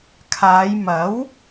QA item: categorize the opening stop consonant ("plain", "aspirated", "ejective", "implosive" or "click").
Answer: aspirated